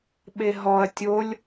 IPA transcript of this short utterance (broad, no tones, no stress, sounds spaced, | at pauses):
ɓ e ɦ ɔ ɐ̯ tʲ o lʲ